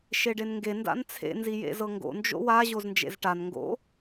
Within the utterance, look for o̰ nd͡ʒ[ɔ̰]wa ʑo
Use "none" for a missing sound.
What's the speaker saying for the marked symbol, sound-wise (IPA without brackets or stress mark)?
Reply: o̰